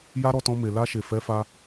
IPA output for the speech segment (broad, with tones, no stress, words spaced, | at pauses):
ja˦ɾɔ˦˨tɔ̃˧me˨ la˧ʃe˨ fɛ˨˦fa˧